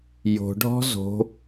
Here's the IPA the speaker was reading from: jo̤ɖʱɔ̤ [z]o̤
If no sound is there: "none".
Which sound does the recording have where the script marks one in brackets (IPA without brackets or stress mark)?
z